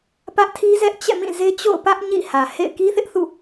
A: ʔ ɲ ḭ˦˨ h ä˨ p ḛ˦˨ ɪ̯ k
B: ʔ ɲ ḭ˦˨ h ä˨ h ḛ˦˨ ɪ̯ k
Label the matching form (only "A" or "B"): B